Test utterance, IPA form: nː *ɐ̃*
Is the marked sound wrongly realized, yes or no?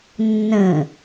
yes